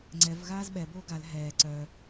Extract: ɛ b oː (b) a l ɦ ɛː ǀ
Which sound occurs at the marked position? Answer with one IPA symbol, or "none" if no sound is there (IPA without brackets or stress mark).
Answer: ɡ